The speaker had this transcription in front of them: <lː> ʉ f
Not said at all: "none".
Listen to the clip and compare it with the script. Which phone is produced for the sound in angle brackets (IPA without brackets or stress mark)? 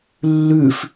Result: lː